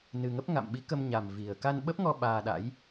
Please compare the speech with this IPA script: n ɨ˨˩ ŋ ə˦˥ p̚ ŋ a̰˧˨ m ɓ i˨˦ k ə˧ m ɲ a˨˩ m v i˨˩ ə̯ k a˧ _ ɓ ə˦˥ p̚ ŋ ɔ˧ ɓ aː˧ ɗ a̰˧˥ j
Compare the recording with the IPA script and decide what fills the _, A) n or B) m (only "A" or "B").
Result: A